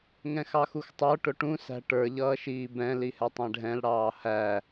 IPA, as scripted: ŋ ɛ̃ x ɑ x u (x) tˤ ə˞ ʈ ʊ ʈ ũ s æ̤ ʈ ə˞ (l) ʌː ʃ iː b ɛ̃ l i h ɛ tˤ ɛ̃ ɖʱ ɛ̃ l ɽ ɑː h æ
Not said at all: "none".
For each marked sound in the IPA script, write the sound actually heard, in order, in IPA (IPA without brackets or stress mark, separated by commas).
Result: x, ʎ